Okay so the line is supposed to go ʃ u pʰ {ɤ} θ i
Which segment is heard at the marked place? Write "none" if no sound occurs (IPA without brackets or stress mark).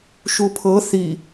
ɤ